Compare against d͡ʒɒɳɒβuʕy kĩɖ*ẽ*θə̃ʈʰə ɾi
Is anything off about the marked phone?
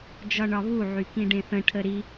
no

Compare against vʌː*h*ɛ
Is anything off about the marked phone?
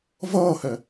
no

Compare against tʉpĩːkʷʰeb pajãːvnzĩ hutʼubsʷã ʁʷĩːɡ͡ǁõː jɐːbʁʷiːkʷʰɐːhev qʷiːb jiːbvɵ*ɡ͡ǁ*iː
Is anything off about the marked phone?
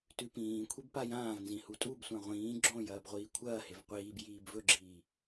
no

